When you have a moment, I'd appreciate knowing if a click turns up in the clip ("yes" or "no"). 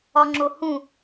yes